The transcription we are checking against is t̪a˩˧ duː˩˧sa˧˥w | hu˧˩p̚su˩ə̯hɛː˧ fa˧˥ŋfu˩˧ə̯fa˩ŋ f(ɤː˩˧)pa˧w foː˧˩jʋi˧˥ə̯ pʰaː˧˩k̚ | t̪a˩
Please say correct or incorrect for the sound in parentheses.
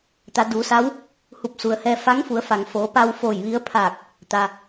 incorrect